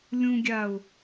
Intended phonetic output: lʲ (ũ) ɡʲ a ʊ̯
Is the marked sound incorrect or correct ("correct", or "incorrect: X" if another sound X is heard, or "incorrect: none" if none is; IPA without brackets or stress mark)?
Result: correct